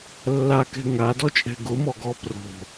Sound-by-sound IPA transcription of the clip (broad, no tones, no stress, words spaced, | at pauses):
lːakɛ̤ ŋadɔt͡ʃʼɛ̤ ɡʊmɔ ɡɔpro̤